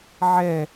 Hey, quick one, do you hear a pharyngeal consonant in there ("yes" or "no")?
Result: yes